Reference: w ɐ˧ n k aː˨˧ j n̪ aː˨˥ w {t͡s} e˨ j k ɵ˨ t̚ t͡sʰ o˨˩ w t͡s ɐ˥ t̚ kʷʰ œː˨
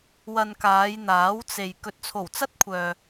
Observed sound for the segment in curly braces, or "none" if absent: t͡s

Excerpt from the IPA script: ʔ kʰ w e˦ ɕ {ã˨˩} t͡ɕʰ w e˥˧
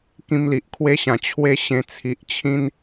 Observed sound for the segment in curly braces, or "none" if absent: ã˨˩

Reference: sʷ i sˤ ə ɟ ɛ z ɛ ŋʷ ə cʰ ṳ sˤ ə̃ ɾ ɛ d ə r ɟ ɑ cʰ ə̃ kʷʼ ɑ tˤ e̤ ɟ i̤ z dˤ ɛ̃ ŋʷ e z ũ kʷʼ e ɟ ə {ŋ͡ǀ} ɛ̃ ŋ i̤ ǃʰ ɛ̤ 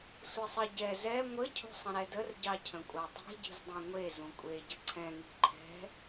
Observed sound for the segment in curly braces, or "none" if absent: ǀʰ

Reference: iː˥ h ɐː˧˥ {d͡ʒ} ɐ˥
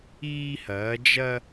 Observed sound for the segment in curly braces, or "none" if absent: d͡ʒ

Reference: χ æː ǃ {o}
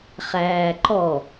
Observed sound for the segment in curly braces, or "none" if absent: ɔ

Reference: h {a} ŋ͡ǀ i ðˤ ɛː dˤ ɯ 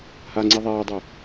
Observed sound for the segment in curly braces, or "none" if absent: a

